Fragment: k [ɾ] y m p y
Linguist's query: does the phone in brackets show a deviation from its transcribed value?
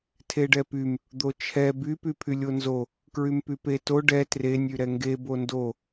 yes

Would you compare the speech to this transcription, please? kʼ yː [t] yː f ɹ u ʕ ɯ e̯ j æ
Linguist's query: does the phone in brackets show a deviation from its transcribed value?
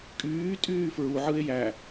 yes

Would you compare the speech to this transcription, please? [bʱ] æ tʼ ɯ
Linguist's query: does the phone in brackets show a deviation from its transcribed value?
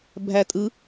no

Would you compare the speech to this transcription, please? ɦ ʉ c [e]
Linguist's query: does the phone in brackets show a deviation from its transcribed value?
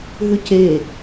no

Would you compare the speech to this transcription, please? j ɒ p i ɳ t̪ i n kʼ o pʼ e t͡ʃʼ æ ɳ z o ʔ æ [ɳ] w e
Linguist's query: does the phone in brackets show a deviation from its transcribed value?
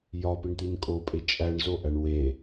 no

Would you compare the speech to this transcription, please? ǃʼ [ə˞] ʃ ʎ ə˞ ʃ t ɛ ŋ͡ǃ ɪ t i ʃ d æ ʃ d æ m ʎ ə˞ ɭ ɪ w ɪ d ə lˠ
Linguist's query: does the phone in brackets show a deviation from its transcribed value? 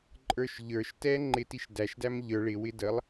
no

